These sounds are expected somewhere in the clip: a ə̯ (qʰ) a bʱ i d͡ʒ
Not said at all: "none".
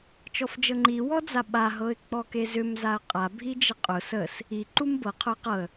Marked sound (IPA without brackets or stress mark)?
qʼ